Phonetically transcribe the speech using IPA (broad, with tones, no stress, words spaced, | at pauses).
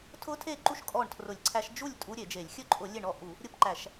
tʰʊ˦˥tʰe˥˩ǃu˥˩ʃ kʼɔ˥˩ɳtʰrʊ˧˩˧lʲǀʰæ˦˥ʃ d͡ʒu˥˩lʲ tʼu˦˥ɾʲe˧˩˧d͡ʒe˧˩˧lʲ xʲɵ˥˩ǃʼʊ˧˩˧ lʲe˥˩ɳɔ˥˩ʔu˧˩˧ | ɾʲʊ˥˩pǃæ˧˩˧ʃ